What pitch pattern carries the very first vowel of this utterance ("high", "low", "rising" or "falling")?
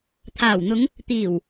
low